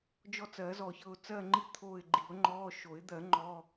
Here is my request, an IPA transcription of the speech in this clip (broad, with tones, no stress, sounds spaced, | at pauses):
d͡ʒ ɔ˦˨ t͡s ɜ˨˩˦ z ɔ˨ ç ɤ˦˨ ʊ̯ t͡s ɜ˦˨ ŋ͡ǃ i˦˨ t̪ʰ oː˦˨ ɪ̯ ɡ͡ǃ i˨˩˦ ʊ̯ ŋ͡ǃ ɔː˧˥˧ ʃ o˨˩˦ ɪ̯ d̪ ɜ˨˩˦ ŋ͡ǃ ɔ˧˥˧